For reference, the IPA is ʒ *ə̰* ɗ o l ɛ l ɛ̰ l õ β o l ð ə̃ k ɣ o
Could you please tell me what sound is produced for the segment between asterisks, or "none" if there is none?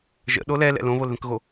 ə̰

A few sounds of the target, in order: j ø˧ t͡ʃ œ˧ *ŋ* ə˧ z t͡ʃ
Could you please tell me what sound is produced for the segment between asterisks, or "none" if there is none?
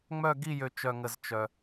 ŋ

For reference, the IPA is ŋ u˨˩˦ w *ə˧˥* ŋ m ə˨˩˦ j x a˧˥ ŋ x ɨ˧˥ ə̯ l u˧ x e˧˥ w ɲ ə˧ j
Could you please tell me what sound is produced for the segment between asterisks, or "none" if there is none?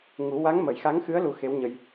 a˧˥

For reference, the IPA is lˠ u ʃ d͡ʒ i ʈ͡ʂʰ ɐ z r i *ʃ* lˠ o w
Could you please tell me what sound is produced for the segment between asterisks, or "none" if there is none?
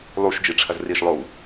ʃ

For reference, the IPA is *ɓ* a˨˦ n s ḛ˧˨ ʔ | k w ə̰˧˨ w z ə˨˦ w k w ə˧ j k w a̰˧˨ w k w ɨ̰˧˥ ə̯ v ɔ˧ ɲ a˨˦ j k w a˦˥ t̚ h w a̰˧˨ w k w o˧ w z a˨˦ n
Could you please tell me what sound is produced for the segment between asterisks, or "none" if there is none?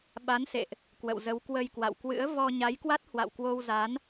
ɓ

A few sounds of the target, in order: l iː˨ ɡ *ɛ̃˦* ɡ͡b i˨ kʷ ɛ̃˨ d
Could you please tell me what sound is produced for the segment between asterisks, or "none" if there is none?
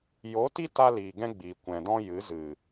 ɛ̃˦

